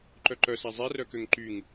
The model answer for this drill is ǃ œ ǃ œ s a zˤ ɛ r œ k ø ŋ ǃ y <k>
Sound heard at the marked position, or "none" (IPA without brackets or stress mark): ŋ